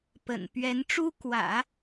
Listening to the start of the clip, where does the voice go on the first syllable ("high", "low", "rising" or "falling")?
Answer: low